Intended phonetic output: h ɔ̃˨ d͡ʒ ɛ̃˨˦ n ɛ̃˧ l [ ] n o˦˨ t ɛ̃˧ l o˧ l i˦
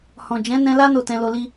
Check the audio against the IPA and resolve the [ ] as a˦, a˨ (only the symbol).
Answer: a˦